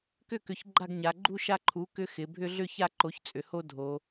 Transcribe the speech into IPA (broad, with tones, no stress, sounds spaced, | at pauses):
k ʏ˥˨ k ʏ˩˥ ç ɡ͡ǃ a˥˨ ɡ ɲ a˩˧ ɡ͡ǃ u˦ ʃ a˦ ǃʰ u˩˥ k ʏ˦ x ɪ˩˧ bʱ ʏ˦ ɮ ʏ˥˨ ç a˥˨ ǃ o˩˥ ç t͡sʼ ʏ˩˧ h o˦ dʱ o˩˧